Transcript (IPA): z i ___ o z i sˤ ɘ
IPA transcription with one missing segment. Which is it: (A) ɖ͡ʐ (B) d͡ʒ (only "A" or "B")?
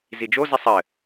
B